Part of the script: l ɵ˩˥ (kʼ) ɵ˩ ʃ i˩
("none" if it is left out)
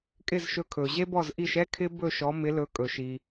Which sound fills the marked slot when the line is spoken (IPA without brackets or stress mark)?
kʼ